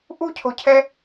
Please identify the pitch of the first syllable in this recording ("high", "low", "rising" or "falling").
high